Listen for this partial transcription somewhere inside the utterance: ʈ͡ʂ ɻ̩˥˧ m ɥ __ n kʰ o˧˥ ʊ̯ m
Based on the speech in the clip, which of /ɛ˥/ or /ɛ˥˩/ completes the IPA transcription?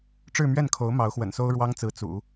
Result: ɛ˥˩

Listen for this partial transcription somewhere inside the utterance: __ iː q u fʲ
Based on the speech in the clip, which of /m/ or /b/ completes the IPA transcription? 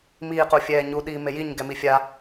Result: m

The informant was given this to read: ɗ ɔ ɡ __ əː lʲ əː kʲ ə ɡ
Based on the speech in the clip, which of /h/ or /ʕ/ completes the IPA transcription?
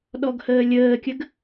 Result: h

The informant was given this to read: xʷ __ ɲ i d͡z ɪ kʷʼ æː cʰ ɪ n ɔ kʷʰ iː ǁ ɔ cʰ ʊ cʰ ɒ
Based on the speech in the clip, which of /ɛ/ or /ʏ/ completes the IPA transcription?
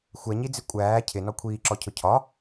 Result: ɛ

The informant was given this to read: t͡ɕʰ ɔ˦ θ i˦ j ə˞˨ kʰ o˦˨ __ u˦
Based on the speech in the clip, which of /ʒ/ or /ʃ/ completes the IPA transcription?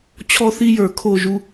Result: ʒ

